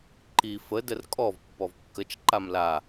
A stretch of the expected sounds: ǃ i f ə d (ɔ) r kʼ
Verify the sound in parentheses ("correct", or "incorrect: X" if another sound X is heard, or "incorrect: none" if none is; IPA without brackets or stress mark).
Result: incorrect: ə